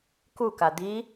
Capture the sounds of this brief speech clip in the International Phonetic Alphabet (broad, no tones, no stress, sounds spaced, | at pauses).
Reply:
k u k a d̪ i